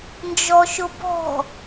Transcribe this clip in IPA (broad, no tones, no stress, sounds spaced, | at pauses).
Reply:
n d͡ʒ ɔ ʃ ʊ b ɔ̤